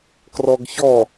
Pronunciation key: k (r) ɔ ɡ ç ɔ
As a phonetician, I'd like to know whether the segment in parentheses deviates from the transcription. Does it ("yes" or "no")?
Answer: no